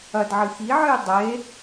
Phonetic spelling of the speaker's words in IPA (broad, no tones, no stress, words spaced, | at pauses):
ɐdʕɨ xiʕɨj dˤe